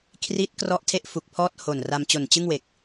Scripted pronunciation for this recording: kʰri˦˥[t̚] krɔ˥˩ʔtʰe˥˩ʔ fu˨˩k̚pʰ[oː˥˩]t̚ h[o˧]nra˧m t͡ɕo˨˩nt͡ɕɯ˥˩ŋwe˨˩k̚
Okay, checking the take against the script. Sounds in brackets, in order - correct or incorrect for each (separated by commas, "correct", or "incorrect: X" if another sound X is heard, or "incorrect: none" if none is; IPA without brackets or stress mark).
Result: correct, incorrect: ɔː˥˩, incorrect: o˨˩